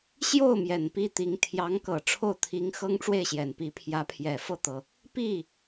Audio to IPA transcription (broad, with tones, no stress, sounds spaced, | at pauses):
ɕ j o˥˩ ʊ̯ m j ɛ˨˩ n p i˥˩ t̪ i˧˥ ŋ t̪ʰ j ɑ˧˥ ŋ k ɤ˨˩ ʈ͡ʂʰ o˥˩ ʊ̯ t̪ʰ i˧˥ ŋ x ɤ˥ ŋ ʈ͡ʂ w e˥˩ ɪ̯ ɕ j ɛ˨˩ n p i˧˥ pʰ j ä˧˥ pʰ j ɛ˨˩ f ɤ˥˩ t̪ ɤ˩ | p i˥˩